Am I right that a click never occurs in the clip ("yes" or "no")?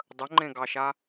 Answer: no